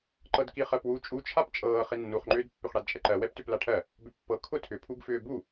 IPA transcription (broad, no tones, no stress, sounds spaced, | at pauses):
ǃ ɤ d k i χ ɜ p w u t͡ʃʼ u t͡ʃʰ a p t͡ʃʼ ɤː χ i nː u χ ŋ͡ǃ ʏː d pː ʏ χ ɽ a d t͡ʃʼ ɛ ǃ ɜ w ɛ p t ʏ p l a ʈʰ ɜ | b ʏ pː ɤ kʰ ʊ tʰ ʏ pʰ u ɡ f ʏː b u